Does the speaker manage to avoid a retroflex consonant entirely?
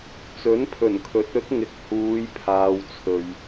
yes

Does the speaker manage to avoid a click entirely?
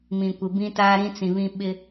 yes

